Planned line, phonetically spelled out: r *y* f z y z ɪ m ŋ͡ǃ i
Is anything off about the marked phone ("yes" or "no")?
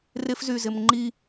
yes